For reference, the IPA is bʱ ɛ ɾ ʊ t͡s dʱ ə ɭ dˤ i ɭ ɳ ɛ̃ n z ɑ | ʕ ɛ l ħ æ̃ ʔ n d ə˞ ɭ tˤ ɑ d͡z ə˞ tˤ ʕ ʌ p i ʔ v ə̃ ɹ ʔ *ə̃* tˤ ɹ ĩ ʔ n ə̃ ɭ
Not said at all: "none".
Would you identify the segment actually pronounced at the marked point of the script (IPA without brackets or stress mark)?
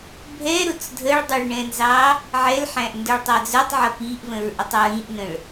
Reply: ə